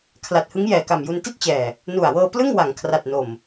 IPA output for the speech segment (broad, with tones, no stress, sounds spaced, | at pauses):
kʰ l a˨˩ t̚ h ɯ˦˥ ŋ j ɛː˨˩ k a˨˩ m j u˧ n t i˥˩ t̚ t͡ɕ ɛː˨˩ | n u˨˩ a̯ w ɤː˧ p l ɯ˥˩ ŋ w a˩˦ ŋ kʰ r a˨˩ t̚ n o˨˩ m